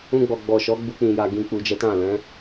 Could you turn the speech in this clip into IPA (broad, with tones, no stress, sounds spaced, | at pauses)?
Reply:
ũ˧ ɡ͡b ɔ˨ ɡ͡b ɔ˨ ʃ ɔ˨˦ ɡ͡b u˧ k͡p ĩ˨ j a˨ ɡ ĩ˨ k͡p u˨ d͡ʒ ɛ˨˦ t ã˦˨ l ɛ̃˨˦